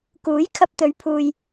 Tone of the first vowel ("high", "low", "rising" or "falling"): rising